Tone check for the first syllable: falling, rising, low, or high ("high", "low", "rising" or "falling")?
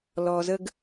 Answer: low